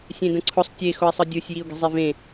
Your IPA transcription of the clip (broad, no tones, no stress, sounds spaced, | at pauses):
sʲ ẽ d ə̃ ǀʰ ʊ sˤ tʲ e x ʊ ɪ̯ sˤ ɯ dʲ ɯ sʲ j i ʊ̯ ɡ i̤ zˤ e v ẽ